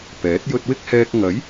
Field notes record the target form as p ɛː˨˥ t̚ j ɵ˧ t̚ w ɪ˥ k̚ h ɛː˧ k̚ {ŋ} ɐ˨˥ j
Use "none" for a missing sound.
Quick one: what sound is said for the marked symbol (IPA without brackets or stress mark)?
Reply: ŋ